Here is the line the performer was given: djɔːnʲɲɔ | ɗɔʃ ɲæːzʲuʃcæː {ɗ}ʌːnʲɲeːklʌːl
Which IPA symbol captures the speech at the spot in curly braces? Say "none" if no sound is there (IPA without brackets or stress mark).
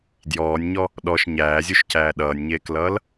ɗ